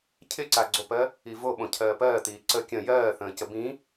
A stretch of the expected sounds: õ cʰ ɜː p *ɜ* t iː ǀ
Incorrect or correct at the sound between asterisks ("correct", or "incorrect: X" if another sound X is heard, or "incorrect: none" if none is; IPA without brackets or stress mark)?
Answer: incorrect: ɜː